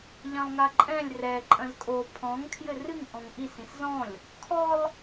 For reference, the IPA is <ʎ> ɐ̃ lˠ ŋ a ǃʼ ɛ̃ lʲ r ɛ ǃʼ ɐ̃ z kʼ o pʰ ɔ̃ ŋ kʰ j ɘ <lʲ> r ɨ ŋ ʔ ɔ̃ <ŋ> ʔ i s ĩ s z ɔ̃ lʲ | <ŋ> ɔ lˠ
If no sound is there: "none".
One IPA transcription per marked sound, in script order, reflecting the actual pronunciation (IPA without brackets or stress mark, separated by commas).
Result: ʎ, none, ŋ, kʰ